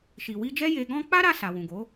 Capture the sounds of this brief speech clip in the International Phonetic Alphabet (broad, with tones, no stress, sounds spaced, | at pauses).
ʃ i˨ w i˧ d͡ʒ ɛ˦ j e˧ ɡ ɔ̃˦ k͡p a˦ ɾ a˧ s a˨ w ũ˨ ɡ o˨˦